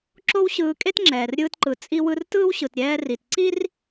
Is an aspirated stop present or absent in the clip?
absent